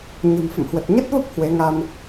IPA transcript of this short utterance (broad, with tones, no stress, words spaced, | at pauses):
ɲə̤˨˩m fə̰˧˨mhwə˨˩t̚ ɲə˦˥t̚və˦˥p̚ hwe˨˦ŋa˧m